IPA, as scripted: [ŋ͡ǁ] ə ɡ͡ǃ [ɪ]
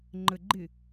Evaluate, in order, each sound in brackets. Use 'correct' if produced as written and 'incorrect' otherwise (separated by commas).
incorrect, correct